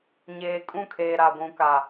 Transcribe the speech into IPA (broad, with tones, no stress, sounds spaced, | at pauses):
ɲ eː˨ kʼ ũ˦˨ kʰ eː˨ ɾ a˨ ɡʷ ũ˨ k a˨